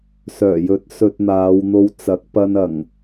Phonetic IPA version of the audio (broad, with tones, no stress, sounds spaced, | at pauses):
s œː˨˩ j ɵ˨˥ t̚ s ɵ˧ t̚ n̪ aː˨˧ w n̪ o˧ w t͡s ɐ˨˥ k̚ p ɐ˧ n ɐ˨˩ ŋ